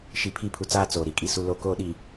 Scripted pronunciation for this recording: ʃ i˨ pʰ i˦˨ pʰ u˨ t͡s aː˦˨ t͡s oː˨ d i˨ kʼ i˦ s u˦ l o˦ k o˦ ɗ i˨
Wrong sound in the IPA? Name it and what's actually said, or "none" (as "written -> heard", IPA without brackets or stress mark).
d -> ɾ